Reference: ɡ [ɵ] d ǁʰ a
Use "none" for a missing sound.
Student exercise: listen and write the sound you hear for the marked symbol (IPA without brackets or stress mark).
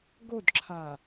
o